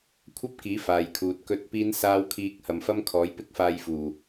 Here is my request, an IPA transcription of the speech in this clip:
kʷʰ ɐ˥ p̚ k iː˨˥ f aː˨ j kʰ uː˨ t̚ k ɵ˧ t̚ p iː˥ n s aː˥ w kʰ iː˧ k̚ h ɐ˨ m f ɐ˥ m kʰ ɔː˨˥ j p ɪ˥ k̚ f aː˧ j f uː˨˩

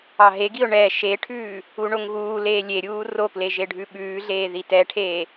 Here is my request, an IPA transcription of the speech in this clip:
ɑ ɦ e ɡ i ʊ̯ ɳ ɛ ʃ e ʈʰ ʉː | u ɳ o ŋ ɣ uː l eː lʲ e ɾʲ uː r o k l e ʒ e ɖʱ ʉ ɓ ʉː ɮ eː ð i t ɛ ʈʰ eː

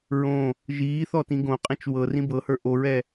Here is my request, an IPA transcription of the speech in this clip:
ɹ õ | ʒ iː θ ɔ t ĩ ɡ õ qʼ ɛ̃ t͡ʃ w ɤ r ĩ b ɤ h ə˞ ʔ o ɹ ɛ

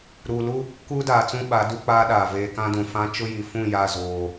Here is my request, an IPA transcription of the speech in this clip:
ɾ uː˨ l u˦ | k uː˦ d aː˨ t͡s ũ˦ ɓ a˨˦ d u˦ k͡p aː˦ ɗ aː˨ v eː˨ k ã˦ d ũ˨ f ã˦ t͡ʃ ʊ˦ j i˨ f ũ˦˨ j a˦˨ z oː˨

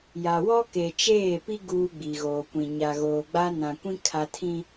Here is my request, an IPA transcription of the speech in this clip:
j a˨ w ɔ˦ k e˨ t͡ʃ eː˦˨ p i˦ ɡ uː˦ ɡ͡b i˨ ɣ oː˨ kʷ ĩ˨ ɲ a˨ ɣ oː˨ ɡ͡b a˦ n ã˨ kʷ ĩ˦ kʰ a˨ tʰ ĩ˨

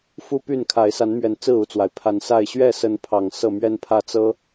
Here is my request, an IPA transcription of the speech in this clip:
f u˦ p y˥˨ n kʰ a˨˦ ɪ̯ s a˨˦ n m ɥ ɛ˨˩ n t͡s ɹ̩˥˨ u˥˨ t͡s w a˩ ɪ̯ pʰ a˨˦ n s a˥˨ ɪ̯ ɕ ɥ ɛ˥˨ s ə˨˦ n pʰ ɑ˨˩ ŋ s ɤ˥˨ m ɥ ɛ˦ n pʰ ä˥˨ t͡s ɤ˦

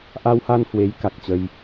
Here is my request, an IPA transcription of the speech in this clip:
ʔ a˧ w h a˧ n h w e˨˦ j k a˨˩ k̚ t͡ɕ ə˧ j

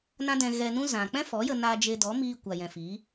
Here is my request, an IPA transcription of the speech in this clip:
n ã˦ d ɛ̃˧ ɣ ɛ˧ n ũ˦ z ã˨ k͡p ɛ̃˦ f ɔ˨˦ j ə˧ n aː˧ d͡ʒ e˧ d ɔ˨˦ m iː˧ kʷ a˨ j ɛ̃˨ f iː˨˦

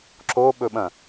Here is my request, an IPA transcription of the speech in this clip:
ǁ o ɓ ɵ ɓ ɐ̃

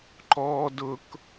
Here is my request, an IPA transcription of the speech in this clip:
ǃ ɔː d ʊ k

